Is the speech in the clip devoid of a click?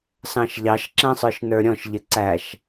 no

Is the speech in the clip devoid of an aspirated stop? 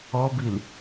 yes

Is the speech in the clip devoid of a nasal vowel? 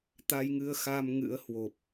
yes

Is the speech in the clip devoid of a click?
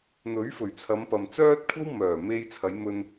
yes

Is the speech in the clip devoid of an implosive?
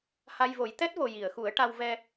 yes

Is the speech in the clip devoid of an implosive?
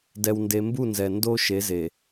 yes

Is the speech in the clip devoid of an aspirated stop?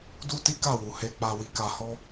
yes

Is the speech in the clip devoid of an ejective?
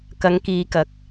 yes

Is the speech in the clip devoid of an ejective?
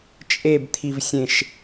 no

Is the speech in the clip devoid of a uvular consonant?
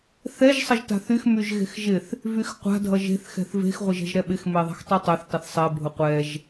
no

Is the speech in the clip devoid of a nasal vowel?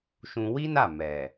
no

